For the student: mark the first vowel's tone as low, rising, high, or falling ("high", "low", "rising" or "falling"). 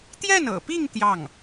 falling